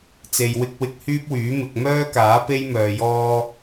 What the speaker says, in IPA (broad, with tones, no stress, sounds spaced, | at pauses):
t͡s e˨ j w ɪ˧ k̚ w ɪ˧ k̚ h yː˥ p̚ w yː˨˥ m ɪ˨ k̚ m œː˥ k aː˨˥ p e˥ j m œː˨ j ɔː˧